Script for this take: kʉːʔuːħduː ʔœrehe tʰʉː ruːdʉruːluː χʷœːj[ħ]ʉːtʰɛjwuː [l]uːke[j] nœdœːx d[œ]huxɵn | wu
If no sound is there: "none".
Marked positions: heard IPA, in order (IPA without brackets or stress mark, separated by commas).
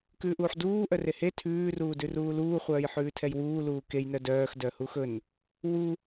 ħ, l, j, œ